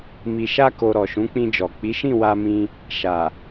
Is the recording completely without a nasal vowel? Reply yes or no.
no